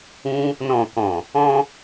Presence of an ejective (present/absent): absent